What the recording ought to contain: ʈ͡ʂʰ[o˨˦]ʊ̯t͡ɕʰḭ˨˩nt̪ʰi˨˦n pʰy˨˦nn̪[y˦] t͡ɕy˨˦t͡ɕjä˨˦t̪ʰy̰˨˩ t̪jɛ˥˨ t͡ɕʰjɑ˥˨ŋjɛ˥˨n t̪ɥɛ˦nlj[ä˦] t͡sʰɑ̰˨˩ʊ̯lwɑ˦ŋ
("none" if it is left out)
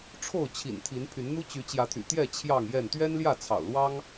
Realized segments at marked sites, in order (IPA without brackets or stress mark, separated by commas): o˥˨, u˦, ä˥˨